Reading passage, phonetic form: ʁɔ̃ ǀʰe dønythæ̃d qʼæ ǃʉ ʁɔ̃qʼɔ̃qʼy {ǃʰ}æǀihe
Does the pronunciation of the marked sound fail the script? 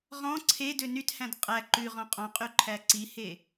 no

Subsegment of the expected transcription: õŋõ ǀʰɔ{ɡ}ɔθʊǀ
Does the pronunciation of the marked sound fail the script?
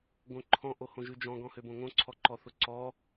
yes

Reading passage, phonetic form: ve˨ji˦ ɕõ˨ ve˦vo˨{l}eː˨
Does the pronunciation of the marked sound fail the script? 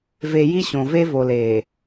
no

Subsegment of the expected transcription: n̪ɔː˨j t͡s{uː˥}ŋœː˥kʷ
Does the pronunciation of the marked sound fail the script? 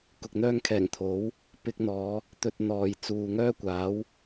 yes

